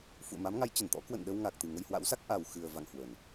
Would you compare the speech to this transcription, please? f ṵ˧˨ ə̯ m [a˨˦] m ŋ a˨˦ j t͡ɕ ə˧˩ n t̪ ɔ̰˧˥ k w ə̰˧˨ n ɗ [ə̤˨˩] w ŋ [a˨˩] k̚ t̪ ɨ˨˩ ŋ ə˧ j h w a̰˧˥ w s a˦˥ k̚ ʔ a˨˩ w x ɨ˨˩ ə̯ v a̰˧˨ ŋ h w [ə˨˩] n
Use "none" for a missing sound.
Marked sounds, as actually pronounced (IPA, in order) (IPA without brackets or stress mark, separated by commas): a˨˦, ə˧, a˨˩, ə˨˩